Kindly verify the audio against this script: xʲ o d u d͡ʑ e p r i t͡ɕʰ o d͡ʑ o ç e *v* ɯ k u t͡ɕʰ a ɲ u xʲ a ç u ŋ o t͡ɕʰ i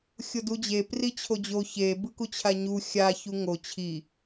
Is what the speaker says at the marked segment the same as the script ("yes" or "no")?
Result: no